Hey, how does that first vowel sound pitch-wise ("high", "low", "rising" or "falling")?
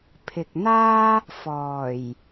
low